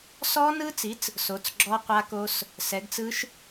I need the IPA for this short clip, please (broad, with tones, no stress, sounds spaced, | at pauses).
s ɔ˦˥ n ɯ˦˥ t͡s i˩˥ t͡s | s o˩˥ t͡s ɡ͡ǁ ɔ˦˥ qʷ a˦˥ k o˦˥ s | s ɛ˩˥ ɡ t͡s ɯ˦˥ ʃ